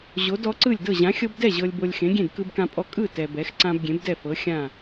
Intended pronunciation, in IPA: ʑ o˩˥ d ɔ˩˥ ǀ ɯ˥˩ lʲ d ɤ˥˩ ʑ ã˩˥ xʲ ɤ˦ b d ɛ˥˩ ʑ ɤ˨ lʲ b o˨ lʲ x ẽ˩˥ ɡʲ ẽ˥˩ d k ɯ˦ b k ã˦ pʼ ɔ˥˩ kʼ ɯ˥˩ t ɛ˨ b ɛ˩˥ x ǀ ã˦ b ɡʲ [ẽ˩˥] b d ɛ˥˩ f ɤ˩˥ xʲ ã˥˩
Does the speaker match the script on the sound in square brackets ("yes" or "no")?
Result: yes